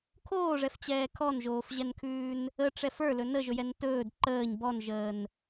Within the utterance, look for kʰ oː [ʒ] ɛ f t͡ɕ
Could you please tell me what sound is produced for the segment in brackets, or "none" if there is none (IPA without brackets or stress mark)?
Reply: ʐ